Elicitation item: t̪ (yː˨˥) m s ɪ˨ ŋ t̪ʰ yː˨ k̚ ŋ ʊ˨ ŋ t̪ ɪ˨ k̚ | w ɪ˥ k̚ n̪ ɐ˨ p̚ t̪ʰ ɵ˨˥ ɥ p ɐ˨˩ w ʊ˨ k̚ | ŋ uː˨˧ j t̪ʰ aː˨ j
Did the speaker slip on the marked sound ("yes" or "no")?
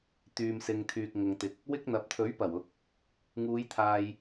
yes